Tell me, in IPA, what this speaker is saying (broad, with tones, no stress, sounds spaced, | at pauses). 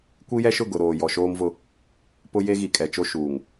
kʷ i˦ j ɛ˦ ʃ ʊ˦˨ ɡ ʊ˨ ɾ oː˨ j ɔ˨ ʃ oː˦ m v ʊ˦ | p ʊ˦ j e˦ ɣ i˨ kʼ ɛ˨ t͡ʃ o˦ ʃ uː˨ ŋ